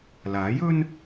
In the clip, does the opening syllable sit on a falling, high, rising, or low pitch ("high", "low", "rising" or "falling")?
rising